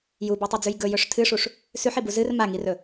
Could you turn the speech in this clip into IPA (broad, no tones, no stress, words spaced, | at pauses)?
jubʉtˤɨd͡zʉj ɡɵjɵʂ tʰɨʂuʂ | sʉħibu zɨr maŋirɵ